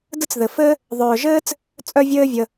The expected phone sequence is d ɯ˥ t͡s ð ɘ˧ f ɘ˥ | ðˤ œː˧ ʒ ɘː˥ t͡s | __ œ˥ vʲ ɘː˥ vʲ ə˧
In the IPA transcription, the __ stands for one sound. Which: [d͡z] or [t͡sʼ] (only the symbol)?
t͡sʼ